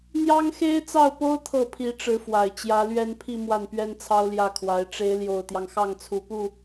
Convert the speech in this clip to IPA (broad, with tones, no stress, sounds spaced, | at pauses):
n̪ j ɑ˥ ŋ x e˥ ɪ̯ t͡s ɑ˥˩ ʊ̯ p o˥ ʊ̯ t̪ʰ ɤ˥˩ pʰ i˧˥ ʈ͡ʂ ɻ̩˧˥ f w a˨˩ ɪ̯ t͡ɕ j ä˧˥ l ɥ ɛ˥ n pʰ i˥˧ m w a˥˩ n p ɥ ɛ˥ n t͡sʰ ɑ˥ ʊ̯ l j ä˥˩ kʰ w a˧˥ ɪ̯ ʈ͡ʂ e˧˥ ɪ̯ l j o˨˩ ʊ̯ t̪ j ɑ˦ ŋ x ɑ˥˩ ŋ t͡sʰ u˨˩ p u˥˩